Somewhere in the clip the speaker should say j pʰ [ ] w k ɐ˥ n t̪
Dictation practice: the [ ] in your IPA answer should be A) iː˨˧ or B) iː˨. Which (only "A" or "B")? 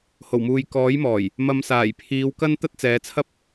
A